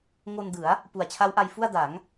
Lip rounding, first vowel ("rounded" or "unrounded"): rounded